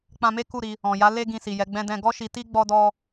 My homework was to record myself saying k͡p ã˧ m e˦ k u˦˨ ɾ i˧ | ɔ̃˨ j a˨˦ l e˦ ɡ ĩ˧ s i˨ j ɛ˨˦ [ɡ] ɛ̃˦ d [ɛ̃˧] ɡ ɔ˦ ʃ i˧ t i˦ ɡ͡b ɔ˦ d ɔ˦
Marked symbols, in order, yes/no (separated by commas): no, yes